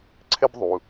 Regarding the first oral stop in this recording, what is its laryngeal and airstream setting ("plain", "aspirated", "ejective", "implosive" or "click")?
click